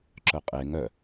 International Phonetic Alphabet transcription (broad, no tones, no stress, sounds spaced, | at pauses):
ǁ œ qʼ e ŋ œ